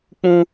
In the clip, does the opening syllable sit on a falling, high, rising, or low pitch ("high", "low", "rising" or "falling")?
high